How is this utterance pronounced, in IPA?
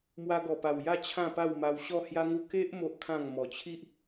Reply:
mwa˧ɡɔ˨˩pa˨˩wja˥˧ t͡ɕʰã˥˧pa˥˧wma˧w ɕɔ˥˧hja˦ŋu˦ ke˦ʔ mo˦ʔkʰã˥˧ŋ mɔ˨˩t͡ɕʰi˦ʔ

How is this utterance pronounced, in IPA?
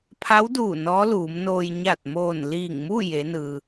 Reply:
pʰa˧˥wduː˧˩ nɔː˧˥luː˩˧mnoː˧j ɲa˧˩t̚moː˧˩nliː˧˩ŋmu˥˨ je˩˧nɯː˩

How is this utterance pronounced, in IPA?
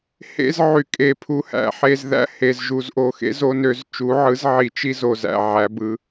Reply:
hḛ˦z ʕy˨kʼe˨ pʰu˨hæ̰˨ħe˨zðæ̰˦˨ he˨z ʒu˨zʔo˨xḛ˦ zo˦nø˨˦z t͡ʃu˨˦ʕɯ˨˦z ʕi˨t͡ʃi˦ zo˨zæ̰˨ʕæ˨˦bɯ˨˦

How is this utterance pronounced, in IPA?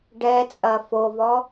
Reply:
ɖɛt͡sʼɐ fovɔ

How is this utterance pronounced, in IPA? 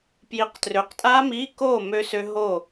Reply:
pji˨˦qtrø˨˦qtʼaː˦˥miː˧˥˧ koː˥˨ mø˦˥sø˦˥ ɦo˥˨

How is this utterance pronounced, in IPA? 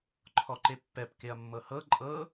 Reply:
ǃʰɔǃepːɛp keɐ̯mːɤhɤ ǃʼɤ

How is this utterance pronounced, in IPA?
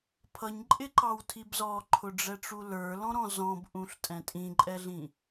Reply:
pʰʌɲǃʼɪǃɑwtʰib zɔǃʰʊɖ͡ʐɛʈ͡ʂu lə˞lɔ̃ɾɔ̃ zɔ̃bʔũɬtʼɛ̃ tʼĩǃʼɛɮĩ

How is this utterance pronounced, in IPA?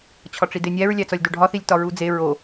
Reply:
t͡ɕʰɒʈ͡ʂidenʲæɹ lʲæt͡sɒlʲdoɖʱɒ θilʲtɒɹud͡ze ɹo

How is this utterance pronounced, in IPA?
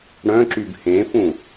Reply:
ɽœ̃ǁyb hẽfũ

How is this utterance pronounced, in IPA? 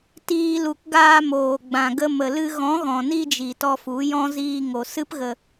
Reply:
tiː˧lu˨k ɡaː˧moː˨ɡ͡bã˨ɡə˧ mə˨lɨ˧ ɣɔ̃˨˦ɣɔ̃˨ni˧d͡ʒi˨ tɔ˧fu˨˦jɔ̃˦ ziː˧ ŋo˨sɨ˦pɣə˧

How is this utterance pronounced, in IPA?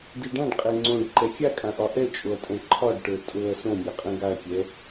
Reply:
diɖãɖqʼɛ ŋ͡ǀõɖ ǃɛxʲakʼãʔɒ ʔɛt͡ʃʼoɐ̯tʼɛ̃ ǃʰɒɖʈə˞ tʼɤɐ̯ sõmʲaqʼɛ̃ ɡaɐ̯kʲɛ

